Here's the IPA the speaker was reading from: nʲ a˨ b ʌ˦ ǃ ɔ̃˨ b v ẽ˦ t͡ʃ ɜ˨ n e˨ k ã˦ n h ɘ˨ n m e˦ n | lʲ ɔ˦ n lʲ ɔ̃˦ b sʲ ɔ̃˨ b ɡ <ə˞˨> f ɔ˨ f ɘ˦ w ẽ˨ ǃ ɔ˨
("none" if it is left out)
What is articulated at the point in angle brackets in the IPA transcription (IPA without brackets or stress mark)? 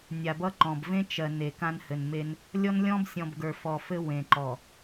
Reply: ə˞˨